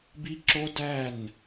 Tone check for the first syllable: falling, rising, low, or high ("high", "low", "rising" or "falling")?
high